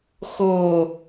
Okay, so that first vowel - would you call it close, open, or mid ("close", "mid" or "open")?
mid